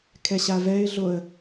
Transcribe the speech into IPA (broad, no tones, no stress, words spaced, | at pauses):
kʰɛɕavɛɪ̯ɮoə̯